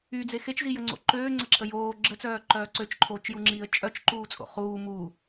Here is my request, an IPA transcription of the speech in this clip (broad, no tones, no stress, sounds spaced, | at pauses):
y d͡z e x e t͡ʃ z i j ə ŋ͡ǀ o̰ ǃ øː ŋ͡ǀ ə ǁʰ ə j oː ɡ͡ǁ ə t͡s œː ǃ œː ǀ ø t͡ʃ ǃʰ oː t͡ʃ j u ŋ͡ǁ iː ə̯ t͡ʃʼ œ t͡ʃ ǃ uː t͡sʼ o̰ χ uː m u